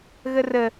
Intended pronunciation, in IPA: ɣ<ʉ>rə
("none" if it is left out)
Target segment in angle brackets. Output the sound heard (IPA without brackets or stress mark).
ə